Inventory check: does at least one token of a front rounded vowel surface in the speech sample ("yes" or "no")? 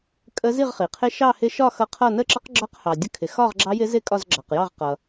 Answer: no